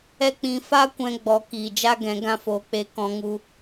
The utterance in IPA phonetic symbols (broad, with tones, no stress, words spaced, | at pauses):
ɛ˦ k͡pĩ˧fa˦kʷɛ̃˧ ɡ͡bɔ˨˦kiː˨d͡ʒa˦ ɡɛ̃˨˦ɡã˦fo˨˦k͡pe˧ kɔ̃˧ŋu˧